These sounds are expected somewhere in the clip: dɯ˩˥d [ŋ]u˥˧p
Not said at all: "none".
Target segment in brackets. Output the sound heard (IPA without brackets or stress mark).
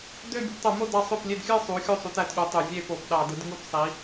ŋ